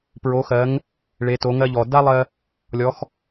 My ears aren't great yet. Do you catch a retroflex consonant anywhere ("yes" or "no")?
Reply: yes